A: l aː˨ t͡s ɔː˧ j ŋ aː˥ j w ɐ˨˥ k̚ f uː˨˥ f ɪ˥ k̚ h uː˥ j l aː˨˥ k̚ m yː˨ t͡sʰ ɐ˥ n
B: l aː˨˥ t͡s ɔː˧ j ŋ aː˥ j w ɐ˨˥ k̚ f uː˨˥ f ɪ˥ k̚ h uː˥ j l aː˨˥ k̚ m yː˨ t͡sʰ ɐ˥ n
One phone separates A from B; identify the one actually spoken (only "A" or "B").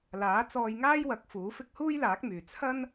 B